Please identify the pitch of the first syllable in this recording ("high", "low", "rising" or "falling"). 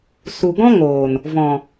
low